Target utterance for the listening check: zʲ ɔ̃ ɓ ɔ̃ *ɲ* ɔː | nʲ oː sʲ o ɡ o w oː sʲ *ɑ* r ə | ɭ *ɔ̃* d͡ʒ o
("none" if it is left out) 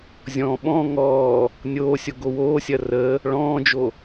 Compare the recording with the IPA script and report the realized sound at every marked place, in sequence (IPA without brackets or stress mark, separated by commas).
ŋ, ɐ, ɔ̃ː